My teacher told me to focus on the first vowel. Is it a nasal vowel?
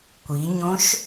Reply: no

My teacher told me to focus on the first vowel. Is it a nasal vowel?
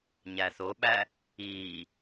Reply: no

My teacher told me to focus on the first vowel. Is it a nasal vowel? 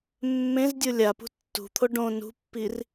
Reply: yes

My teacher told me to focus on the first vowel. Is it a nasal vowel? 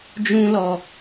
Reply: yes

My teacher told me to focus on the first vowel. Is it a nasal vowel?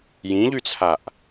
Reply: yes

